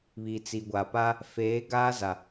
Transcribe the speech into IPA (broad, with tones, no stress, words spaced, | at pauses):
βi˨t͡si˨ɡʷa˨pa˦ | feː˨˦ ɡaː˦za˨